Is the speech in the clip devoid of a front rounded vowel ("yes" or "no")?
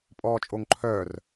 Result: no